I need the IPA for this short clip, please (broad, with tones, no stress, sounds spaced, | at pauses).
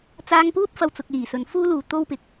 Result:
t͡s aː˧ ŋ p uː˥ t̚ f ɐ˧ w t͡s ʊ˨ k̚ l iː˨˩ s ɵ˨˧ n f uː˥ l uː˨ t̪ o˥ w p ɪ˨˥ k̚